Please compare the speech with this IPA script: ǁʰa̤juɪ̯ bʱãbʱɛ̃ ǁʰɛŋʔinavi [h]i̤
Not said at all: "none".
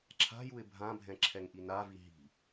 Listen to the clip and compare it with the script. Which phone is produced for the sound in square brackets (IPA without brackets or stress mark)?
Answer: ɦ